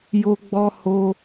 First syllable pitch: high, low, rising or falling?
high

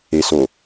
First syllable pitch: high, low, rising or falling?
low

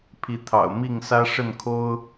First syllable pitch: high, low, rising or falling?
rising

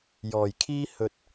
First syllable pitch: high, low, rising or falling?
low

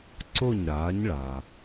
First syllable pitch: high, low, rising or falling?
falling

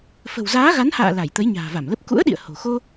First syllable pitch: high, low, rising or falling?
low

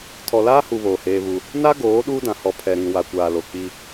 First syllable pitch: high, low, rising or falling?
low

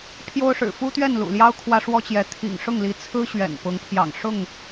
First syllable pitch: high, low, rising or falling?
high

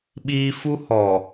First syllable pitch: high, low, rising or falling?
high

